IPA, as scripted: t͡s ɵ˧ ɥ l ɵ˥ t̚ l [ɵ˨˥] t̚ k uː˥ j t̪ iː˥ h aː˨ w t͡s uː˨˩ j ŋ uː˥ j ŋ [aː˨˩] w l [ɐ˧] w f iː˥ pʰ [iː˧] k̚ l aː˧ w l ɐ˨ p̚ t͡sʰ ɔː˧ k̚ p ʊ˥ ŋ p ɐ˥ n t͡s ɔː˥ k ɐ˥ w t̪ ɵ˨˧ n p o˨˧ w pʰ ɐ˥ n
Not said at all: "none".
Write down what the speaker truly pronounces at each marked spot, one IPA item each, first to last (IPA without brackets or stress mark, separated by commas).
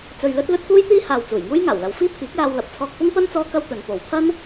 ɵ˥, aː˨˩, ɐ˨˧, iː˨˥